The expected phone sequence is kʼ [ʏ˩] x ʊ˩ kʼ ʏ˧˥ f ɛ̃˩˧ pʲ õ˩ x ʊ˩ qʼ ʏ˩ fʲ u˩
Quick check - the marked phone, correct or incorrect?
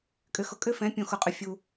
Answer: correct